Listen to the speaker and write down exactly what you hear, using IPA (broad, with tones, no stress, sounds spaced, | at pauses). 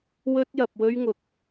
w ɵ˥ t̚ j ɐ˧ p̚ w ɵ˥ ɥ ŋ ʊ˥ k̚